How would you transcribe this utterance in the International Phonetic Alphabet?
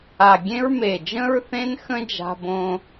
a˨˩ɡʲẽ˥ɹ me˨˩d͡ʒə̃˥ɹθẽ˥nxə̃˥ d͡ʒa̤˥bõ˥

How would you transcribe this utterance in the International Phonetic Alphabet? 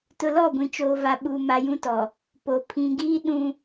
tʊ˨lɔ˦˨ ɡʷĩ˨t͡ʃoː˨va˨ ɓuː˨ ma˨jũ˦tɔ˨ | po˨ pʰĩ˨ɡiː˦ ɗũ˦

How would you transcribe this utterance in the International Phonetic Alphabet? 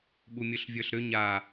ɓumʲɵɬvʲə˞ɬɾʏ ɲa

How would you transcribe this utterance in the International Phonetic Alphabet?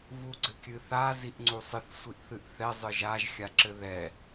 vuɡ͡ǀɘkʲɨθa ziʔŋ͡ǀusˤɨθ sʷiʔθɨʔθɛ zˤɨʒaʒ xʲaǁɘðɛ

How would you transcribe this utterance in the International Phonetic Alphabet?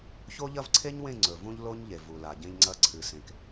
ço˦ʎɐ˦vǀʰe˦ɲwẽ˦˨ ŋ͡ǀɵ˨vũ˦ʎlo˦ɲʎe˨ vu˨la˨ɟẽ˦ʎŋ͡ǀɐ˦ ǀʰɨ˨sẽ˨k

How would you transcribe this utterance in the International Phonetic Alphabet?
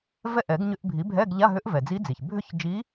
vɛ˥˨ ʔɛ˨˩˦ɡ ɲʏ˧˥˧ʔbʱi˩˥bʱɛ˧˥˧ɡ ʎa˧˥˧ɦʏ˧˥ʔ vɛ˩d͡zi˧˥d͡zi˩ç bʱʏ˥˨çd͡ʒi˧˥

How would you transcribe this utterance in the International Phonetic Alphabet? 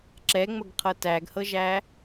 ǁɛŋ͡məɡqʰɤ tæɡhɤʒæ

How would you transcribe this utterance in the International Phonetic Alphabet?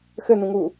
xɘnũŋu

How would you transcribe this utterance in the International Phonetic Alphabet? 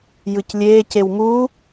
jɯclʲeː cewmuː

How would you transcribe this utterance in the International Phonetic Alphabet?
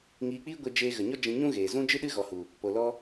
ŋiː˧k͡piː˦ɡʷe˧ d͡ʒeː˧ɣə˨ɲɔ˦ d͡ʒĩ˧ɲũ˦ɣeː˨ zũ˦ d͡ʒɨ˦ɗɨ˦ ɣɔ˨hu˨ | po˨lɔ˧

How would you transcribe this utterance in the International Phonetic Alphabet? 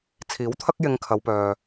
t͡sʰiː˨˥wt̪ʰɐ˥k̚ jɪ˧ŋkʰɐ˨˧wpœː˨

